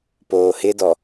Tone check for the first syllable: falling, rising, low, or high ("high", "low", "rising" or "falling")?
low